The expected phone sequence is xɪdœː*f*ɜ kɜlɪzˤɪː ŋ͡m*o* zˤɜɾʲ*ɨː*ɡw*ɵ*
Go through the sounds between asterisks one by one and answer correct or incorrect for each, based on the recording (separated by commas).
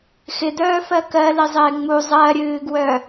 correct, incorrect, correct, incorrect